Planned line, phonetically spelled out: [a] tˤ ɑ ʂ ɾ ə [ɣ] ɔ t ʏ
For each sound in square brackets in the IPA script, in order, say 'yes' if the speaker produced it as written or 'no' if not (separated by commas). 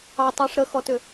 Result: no, no